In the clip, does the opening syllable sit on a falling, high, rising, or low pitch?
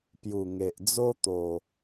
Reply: low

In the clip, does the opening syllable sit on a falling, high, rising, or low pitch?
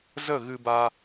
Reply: falling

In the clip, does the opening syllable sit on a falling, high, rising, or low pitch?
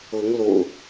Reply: rising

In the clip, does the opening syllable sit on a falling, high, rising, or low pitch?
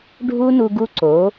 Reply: high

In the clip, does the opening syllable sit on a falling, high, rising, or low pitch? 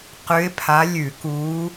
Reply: rising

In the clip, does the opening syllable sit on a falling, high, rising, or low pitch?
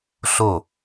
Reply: falling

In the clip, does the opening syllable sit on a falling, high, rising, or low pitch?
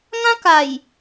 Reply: high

